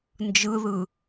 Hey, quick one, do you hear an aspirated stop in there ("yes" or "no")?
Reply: no